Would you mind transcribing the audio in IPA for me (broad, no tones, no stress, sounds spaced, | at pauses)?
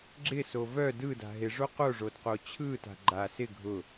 ɡ͡ǁ ɪ s o v œ d ɯ d a̤ ɦ ɪ ʐ o q o ʐ o d q o t͡ɕʰ ɯ t a̤ ɡ͡ǃ a s ɪ ɡʱ ʊ